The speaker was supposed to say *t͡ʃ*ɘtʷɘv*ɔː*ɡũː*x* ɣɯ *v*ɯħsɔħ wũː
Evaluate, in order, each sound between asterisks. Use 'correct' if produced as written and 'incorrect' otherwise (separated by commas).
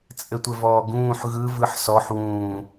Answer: incorrect, correct, incorrect, correct